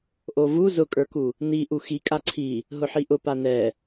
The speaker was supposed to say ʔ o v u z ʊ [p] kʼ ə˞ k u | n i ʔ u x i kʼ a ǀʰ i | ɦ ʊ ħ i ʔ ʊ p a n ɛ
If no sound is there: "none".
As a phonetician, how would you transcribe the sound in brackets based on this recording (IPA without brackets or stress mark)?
none